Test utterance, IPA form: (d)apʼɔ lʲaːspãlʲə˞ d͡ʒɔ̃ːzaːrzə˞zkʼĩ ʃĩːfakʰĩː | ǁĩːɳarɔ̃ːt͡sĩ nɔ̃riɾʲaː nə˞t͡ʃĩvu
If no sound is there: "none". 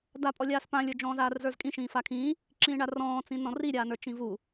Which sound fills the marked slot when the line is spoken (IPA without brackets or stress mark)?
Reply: d